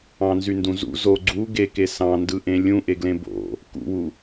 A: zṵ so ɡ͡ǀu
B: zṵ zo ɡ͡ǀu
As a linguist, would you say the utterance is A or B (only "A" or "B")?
B